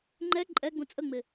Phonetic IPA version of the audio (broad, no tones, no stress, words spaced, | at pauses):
ŋ͡ǃɛ ǃʼɛɡ͡bũ t͡sʼəŋ͡mɪ